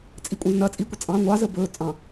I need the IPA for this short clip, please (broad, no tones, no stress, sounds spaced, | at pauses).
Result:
t͡sʼ i kʷʼ ə̃ː z n ɐ t͡sʼ i kʷ ə t͡sʼ ɑ̃ ŋʷ ɑ z ə b ɵː t͡sʼ ɑ̃